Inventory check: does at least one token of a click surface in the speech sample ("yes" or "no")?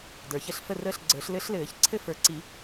yes